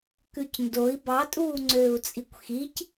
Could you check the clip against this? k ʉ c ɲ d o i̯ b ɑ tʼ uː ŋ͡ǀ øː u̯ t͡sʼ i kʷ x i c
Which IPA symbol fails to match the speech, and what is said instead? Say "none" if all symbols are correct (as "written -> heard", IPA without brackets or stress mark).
ɲ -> n